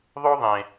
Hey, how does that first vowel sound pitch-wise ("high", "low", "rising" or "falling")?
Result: high